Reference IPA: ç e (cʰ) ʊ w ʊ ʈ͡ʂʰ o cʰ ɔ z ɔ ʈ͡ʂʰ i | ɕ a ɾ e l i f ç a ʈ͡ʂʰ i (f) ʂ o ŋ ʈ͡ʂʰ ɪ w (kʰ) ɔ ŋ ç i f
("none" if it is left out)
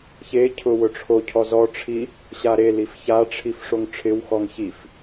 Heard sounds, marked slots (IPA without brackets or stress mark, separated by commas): cʰ, f, x